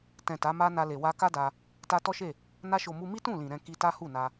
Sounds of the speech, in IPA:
tɛ̃˨ ta˨˦ma˦ na˧le˨ wa˧ka˦da˧ | ta˧ tɔ˦ʃe˦˨ | na˧ʃo˨mu˧mi˦ tũ˦˨lĩ˨ ɾɛ̃˨ ki˧ta˦hu˦˨na˧

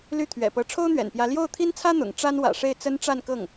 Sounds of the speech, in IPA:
ly˥˩ t̪ʰɥɛ̰˨˩pɤ˧˥ ʈ͡ʂʰo˥ʊ̯n̪ɥɛ̰˨˩npjä˧˥ ljo˥˩ʊ̯t̪ʰi˥nt͡sʰä˥ n̪ʊ̰˨˩ŋ ʈ͡ʂa˥nwä̰˨˩ʂe˥˩ɪ̯ t͡sə˥nʈ͡ʂa˥˧nkɤ˥˩ŋ

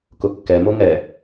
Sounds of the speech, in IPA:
kʊkːɛmo ŋɛ

